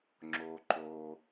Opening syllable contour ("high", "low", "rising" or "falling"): low